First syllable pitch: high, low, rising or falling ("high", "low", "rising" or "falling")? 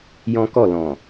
high